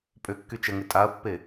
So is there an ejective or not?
yes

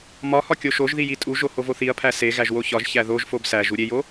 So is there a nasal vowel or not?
no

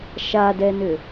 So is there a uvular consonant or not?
no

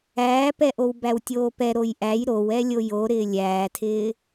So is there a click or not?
no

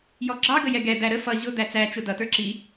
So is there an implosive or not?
no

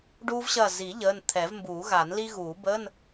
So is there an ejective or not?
no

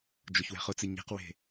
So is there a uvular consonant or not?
yes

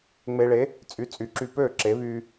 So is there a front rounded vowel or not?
yes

